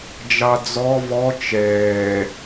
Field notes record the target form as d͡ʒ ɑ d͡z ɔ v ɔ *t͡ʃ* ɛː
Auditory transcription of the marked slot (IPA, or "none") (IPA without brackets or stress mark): t͡ʃ